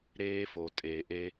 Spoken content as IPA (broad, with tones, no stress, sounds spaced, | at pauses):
ɾ eː˦ f o˨ tʼ eː˨ ʔ e˧